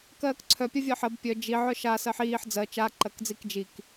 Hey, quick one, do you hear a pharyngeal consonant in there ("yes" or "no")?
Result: yes